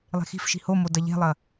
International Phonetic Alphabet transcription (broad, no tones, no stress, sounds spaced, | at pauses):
lˠ e̤ x i̤ f ʃ i̤ h o m o d ɐ ʎ e̤ lˠ ɐ